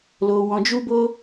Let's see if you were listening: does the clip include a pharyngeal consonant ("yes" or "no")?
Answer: no